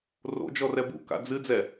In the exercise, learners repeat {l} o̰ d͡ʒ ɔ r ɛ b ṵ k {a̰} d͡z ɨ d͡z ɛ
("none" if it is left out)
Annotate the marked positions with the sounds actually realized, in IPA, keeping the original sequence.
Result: r, a̰

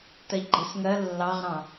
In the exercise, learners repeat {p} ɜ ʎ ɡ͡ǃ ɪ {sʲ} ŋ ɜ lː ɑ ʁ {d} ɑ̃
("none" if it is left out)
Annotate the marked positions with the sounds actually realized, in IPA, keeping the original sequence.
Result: t, s, ɾ

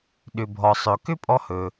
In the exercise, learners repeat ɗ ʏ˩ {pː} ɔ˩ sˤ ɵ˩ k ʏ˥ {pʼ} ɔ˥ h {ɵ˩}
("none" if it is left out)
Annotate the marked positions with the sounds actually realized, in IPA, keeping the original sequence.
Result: bʱ, pʼ, ɵ˩

